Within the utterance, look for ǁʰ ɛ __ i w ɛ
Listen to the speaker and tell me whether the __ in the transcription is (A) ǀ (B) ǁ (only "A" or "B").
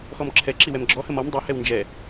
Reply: B